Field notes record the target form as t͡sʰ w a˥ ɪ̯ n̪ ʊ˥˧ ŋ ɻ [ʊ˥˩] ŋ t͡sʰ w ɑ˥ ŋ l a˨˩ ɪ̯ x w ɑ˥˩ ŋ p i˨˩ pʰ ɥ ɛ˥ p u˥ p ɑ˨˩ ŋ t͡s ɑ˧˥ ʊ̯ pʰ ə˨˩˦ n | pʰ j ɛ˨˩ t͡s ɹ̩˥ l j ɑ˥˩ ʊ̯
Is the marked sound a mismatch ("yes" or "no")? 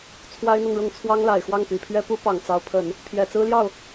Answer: no